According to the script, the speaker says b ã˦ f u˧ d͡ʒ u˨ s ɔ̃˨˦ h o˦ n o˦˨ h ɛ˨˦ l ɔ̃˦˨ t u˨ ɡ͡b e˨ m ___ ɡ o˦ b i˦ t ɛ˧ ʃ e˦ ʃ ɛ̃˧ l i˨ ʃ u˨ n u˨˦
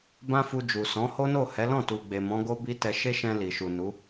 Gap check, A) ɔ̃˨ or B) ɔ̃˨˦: B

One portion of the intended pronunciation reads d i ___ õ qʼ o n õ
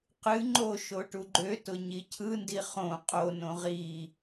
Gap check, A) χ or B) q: A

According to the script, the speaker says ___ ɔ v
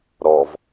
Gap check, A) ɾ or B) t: A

